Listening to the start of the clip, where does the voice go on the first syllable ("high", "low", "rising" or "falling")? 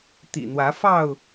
low